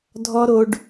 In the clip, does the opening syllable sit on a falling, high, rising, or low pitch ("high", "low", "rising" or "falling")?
high